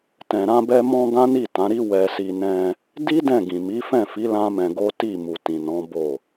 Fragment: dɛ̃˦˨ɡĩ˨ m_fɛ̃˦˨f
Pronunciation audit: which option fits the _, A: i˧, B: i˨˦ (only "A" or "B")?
B